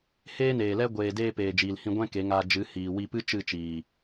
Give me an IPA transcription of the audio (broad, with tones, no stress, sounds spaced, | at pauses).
h eː˦ n eː˨ l ɛ˦ ɡʷ eː˨ d eː˧ p eː˨ d͡ʒ iː˨ l h ĩ˧ ɡʷ ɛ̃˦ k e˨˦ ŋ aː˧ d͡ʒ ɨ˨˦ h iː˨ w i˧ p ɨ˦ t͡ʃ ɨ˦˨ t͡ʃ iː˨